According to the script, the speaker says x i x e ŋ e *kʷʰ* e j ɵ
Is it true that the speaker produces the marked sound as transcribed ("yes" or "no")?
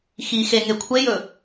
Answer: yes